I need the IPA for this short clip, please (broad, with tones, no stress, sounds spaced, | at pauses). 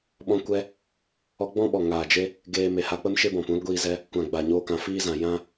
ɓ ɔ̃˧ kʷ ɛ˧ | ɔ˦ ɡ͡b ɔ̃˦ ɓ ɔ˨ ŋ aː˨ d͡ʒ e˧ | ɡ eː˧ m e˨ h a˧ k͡p ə˦ m ʃ e˦ b ɔ̃˨ p ũ˨˦ l ɡʷ iː˧ z ɛ˧ | kʷ ã˨ ɡ͡b a˨ ɲ oː˧ k ã˨ f iː˦ z ã˨ j ã˦